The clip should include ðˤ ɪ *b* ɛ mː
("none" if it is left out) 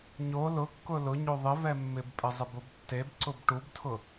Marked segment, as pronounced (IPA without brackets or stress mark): v